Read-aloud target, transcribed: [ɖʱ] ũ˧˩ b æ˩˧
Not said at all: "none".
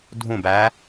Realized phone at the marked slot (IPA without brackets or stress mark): dʱ